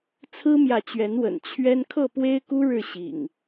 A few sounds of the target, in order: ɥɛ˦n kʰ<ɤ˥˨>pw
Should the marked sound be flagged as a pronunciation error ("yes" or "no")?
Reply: no